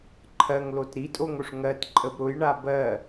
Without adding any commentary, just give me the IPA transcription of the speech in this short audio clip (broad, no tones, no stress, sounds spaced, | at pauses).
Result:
ǃʰ ɜ ŋ l o t ɾ i tʼ o ŋ o ʂ ŋ ɜ t ǃʼ ə b ɾ ʊ j ɳ a b ɜ